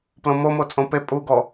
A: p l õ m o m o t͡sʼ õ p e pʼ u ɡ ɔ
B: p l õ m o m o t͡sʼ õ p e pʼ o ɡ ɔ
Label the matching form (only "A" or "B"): A